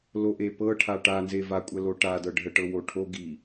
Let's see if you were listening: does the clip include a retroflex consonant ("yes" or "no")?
yes